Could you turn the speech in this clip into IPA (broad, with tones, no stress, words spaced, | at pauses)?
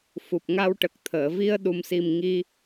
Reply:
fu˨˩p̚ ŋa˧wʈə˨˩k̚t̪ʰəː˨˩˨ vi˧ə̯ɗu˨˩msi˨˩m ŋi˧